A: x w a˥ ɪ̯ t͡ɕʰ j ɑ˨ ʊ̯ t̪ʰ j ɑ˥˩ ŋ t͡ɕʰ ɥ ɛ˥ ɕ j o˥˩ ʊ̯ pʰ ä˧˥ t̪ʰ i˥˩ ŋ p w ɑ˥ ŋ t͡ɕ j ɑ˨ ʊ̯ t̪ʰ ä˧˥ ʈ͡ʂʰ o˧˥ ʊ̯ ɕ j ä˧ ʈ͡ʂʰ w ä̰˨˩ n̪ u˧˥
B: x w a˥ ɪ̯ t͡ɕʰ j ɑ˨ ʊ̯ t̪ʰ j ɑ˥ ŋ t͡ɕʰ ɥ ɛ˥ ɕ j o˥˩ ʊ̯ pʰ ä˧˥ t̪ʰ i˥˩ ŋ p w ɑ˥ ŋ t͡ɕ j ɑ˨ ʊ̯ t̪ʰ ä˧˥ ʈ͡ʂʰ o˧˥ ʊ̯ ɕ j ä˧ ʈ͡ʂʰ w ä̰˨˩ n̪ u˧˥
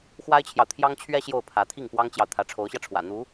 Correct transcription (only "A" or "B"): B